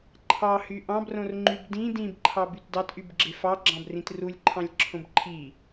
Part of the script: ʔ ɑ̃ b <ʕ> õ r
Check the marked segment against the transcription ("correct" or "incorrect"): incorrect